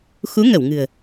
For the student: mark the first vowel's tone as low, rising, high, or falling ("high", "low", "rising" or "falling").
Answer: rising